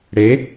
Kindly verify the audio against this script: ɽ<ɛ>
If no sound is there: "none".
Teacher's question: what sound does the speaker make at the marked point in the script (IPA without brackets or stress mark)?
e